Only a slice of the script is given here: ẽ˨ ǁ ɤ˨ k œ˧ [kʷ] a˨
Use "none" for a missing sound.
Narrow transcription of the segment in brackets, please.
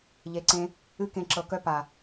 p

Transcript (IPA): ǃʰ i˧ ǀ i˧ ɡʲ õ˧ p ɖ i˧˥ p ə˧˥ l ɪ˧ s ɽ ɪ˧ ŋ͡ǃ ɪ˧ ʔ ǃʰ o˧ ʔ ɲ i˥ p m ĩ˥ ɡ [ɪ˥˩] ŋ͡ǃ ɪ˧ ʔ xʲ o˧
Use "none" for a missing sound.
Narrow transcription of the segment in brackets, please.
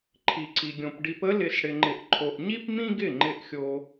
ɪ˥˩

